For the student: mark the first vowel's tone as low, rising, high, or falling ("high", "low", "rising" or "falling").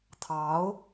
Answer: rising